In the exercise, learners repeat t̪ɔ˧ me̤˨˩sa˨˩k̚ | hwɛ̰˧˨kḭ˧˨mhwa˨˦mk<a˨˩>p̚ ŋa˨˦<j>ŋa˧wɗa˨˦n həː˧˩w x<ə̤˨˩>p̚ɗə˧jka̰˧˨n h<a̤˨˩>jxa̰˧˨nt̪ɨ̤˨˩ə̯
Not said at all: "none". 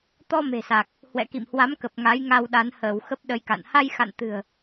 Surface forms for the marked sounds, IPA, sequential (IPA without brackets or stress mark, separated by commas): ə˨˩, j, ə˦˥, a˧